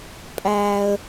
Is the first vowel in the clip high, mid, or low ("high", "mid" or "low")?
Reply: low